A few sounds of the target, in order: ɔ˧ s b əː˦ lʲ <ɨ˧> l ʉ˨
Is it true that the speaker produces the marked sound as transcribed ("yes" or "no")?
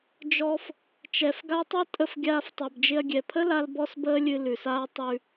yes